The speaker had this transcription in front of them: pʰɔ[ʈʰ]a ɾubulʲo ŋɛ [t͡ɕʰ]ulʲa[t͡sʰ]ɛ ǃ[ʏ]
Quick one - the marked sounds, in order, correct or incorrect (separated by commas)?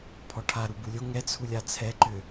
correct, incorrect, correct, correct